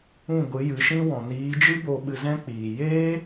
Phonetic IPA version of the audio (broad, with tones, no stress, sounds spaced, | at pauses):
ũ˦˨ ɡʷ ɨ˨˦ j ɨ˨˦ ʃ ĩ˦ w ɔ̃˨ n iː˨˦ d͡ʒ ɨ˦ b o˧ ɓ ɨ˧ z ɛ̃˦ k͡p iː˨ j eː˦